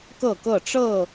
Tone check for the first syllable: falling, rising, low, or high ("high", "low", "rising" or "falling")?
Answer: falling